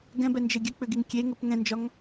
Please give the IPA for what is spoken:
ɡ ɛ̃ b ɛ n d͡ʒ ɘ ɡʲ ɘ k͡p ʏ ɡ i ŋ kʲ e ŋ ɘ p ŋ ɛ̃ n d͡ʒ ɒ ŋ

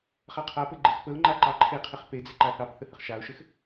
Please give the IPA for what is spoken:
χ a qʰ a p ɘ ɡ͡ǃ ɪ x p ə ʊ̯ ŋ͡ǃ a ǃ ɑ ǃʰ e qʰ ɪ χ p e d͡z ɪ ǃ a θ ɑ p θ ə h ə χ ʃ a ʊ̯ ʃ ɘ x

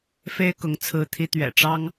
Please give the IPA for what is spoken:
f e˥ ɪ̯ k ʊ˧˥ ŋ t͡sʰ ɹ̩˧˥ t̪ʰ i˧˥ t̪ ɥ ɛ̰˨˩ ʈ͡ʂ ɑ˥ ŋ

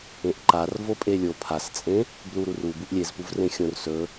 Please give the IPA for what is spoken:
ẽ ʔ ǃ a r v o pʼ e lʲ o pʰ a s t͡sʼ ẽ | b l u ɾ u r u b u ʔ lʲ e z p u v r ẽ xʲ õ r s ɵ

